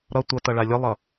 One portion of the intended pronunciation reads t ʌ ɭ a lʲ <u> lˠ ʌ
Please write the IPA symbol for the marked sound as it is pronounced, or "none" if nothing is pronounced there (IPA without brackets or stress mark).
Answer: ɯ